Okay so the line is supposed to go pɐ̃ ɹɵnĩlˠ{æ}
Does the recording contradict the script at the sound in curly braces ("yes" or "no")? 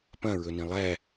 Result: no